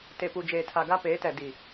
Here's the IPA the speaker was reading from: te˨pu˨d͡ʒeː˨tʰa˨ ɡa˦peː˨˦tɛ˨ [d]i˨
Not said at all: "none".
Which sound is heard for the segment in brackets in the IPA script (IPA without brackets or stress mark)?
d